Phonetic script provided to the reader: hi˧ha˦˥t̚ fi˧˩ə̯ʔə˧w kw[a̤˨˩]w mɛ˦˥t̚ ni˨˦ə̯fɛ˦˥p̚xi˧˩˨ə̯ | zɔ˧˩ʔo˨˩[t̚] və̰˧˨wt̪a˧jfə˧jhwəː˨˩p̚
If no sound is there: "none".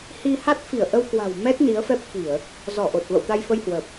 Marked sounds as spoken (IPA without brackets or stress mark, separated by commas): a̤˨˩, t̚